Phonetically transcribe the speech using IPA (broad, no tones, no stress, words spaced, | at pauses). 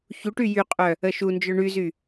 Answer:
çuʈy jyqʼœ | əʃund͡ʒœ ɳyzy